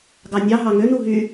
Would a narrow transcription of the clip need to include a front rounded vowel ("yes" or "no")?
yes